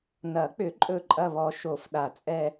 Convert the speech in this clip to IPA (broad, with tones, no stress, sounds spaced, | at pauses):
n ɐ˨˩˦ k͡p ʏ˨˩˦ ǃʼ ɵ˦˨ ǃʼ ɐ˦˨ β ɔ˨˩˦ ʃ o˨˩˦ f ɗ a˨˩˦ t͡sʼ ɛ˦˨